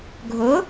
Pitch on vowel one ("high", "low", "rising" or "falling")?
rising